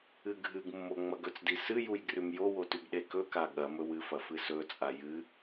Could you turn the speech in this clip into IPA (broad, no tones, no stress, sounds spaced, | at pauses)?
ɨ ɡʱ ɨ ɡ mː o ŋ͡m ɐ ɡ ɵ t͡s d i s ɨ j u j ɡ r ʉ m j o w o t ʉ ɡ ɗ e k ɵ k a ɠ ɐ m ɵ w ɨ f ɐ f ɨ s ɵ t͡sʼ a j ɨ